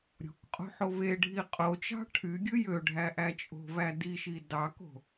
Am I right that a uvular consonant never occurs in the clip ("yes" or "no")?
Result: no